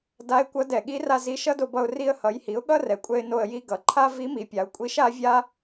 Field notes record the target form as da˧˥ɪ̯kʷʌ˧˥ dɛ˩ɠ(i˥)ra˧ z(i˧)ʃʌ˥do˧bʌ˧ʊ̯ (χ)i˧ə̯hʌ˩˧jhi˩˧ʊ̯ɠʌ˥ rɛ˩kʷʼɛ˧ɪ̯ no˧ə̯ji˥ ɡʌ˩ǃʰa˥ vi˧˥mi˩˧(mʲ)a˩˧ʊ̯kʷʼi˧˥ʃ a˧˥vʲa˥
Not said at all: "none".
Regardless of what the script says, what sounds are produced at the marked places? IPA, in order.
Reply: i˧˥, i˧˥, r, pʲ

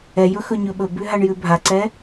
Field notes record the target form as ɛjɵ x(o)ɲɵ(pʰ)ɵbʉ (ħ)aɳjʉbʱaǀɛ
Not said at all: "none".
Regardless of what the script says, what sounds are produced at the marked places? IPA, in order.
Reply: ɵ, ɓ, ɦ

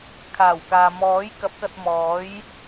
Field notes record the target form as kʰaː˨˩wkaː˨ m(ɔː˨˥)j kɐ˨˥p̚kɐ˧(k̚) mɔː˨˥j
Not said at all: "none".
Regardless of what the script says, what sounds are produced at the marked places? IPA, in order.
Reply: ɔː˨˥, t̚

